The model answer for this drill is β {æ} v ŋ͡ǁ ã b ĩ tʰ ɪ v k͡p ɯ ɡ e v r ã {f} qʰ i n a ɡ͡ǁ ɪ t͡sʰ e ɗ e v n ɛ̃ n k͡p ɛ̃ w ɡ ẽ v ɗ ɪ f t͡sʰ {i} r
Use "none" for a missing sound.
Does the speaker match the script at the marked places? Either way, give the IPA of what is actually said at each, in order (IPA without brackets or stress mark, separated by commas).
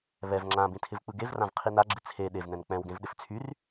ɛ, v, y